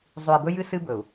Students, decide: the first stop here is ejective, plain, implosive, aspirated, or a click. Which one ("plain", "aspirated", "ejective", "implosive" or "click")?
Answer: plain